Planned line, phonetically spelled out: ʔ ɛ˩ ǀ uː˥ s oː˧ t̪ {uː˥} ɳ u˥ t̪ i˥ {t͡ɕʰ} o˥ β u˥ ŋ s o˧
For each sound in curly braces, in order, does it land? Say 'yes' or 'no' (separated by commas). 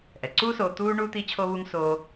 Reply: yes, yes